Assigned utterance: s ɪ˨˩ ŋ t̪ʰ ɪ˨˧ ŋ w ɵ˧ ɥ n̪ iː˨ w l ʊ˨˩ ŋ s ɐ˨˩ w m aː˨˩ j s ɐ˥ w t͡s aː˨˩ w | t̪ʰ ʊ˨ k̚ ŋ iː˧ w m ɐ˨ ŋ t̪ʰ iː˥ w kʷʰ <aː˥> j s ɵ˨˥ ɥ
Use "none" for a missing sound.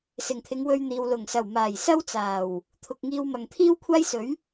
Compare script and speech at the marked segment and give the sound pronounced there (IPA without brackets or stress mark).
aː˥